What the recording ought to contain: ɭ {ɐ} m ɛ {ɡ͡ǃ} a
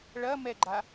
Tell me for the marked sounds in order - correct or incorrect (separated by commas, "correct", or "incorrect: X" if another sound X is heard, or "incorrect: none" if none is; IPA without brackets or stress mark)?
correct, correct